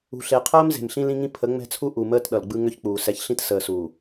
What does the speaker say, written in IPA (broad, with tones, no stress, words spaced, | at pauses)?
ṳ˨ɬe˨qʰəː˦m ze̤˨mɬĩ˦lĩ˦ŋĩ˦ pʰə˨˦ŋ͡mɛ̤˦t͡sʰu˦ ʔu˨məː˦t ɗʌ˨lɡ͡bɯ˦ŋʏ˦çk͡puː˨ sɛ˨çɬĩ˦tsəː˨suː˨